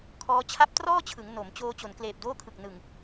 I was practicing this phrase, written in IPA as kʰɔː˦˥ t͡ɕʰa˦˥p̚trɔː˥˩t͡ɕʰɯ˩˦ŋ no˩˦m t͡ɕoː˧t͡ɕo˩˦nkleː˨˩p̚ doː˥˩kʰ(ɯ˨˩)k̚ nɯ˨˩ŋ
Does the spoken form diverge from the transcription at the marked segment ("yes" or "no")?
no